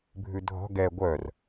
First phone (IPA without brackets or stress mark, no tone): bʱ